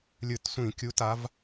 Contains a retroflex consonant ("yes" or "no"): no